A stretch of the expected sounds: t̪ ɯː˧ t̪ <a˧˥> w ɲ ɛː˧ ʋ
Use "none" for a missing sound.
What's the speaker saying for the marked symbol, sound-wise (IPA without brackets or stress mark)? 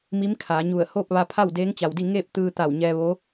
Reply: a˧˩